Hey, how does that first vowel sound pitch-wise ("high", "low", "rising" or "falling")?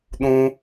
high